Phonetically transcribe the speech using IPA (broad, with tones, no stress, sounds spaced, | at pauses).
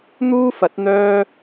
n̪ uː˥ f ɐ˨˥ t̚ n̪ œː˥